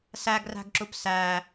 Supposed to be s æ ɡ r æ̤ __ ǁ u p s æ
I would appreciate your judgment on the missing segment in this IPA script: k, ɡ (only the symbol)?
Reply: ɡ